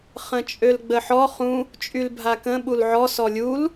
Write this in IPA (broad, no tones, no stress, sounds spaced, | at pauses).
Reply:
χ ə̃ t͡ʃʼ ø l ɡ͡b ə ħ ɔ χ ũ | t͡ʃʼ y l bʱ a k ə̃ ɓ u l ʕ ɔ s ɔ lʲ u l